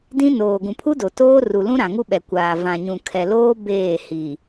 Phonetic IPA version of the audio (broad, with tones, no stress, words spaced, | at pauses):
dĩ˦ noː˨ɡũ˨ pʰu˦do˨ toː˦ru˨lũ˦ɾã˨ ŋu˦ɓɛ˨ kʷaː˨vã˨ ɲũ˨kʰɛ˨loː˦ beː˦˨ hi˨